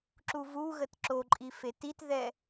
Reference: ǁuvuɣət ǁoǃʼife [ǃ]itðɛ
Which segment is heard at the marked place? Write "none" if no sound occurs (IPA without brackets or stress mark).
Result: t